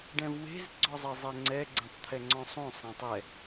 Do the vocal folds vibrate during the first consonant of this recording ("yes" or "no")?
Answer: yes